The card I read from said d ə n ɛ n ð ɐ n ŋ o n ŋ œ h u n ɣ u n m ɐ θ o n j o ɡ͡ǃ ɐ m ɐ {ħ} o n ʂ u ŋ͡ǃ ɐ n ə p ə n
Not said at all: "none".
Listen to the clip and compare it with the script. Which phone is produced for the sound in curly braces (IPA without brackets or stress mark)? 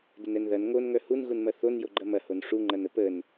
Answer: h